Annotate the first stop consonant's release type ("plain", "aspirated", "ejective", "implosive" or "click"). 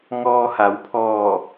aspirated